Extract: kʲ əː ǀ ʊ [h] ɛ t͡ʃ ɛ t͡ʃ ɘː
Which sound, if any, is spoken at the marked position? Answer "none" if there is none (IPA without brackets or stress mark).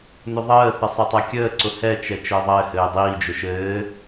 h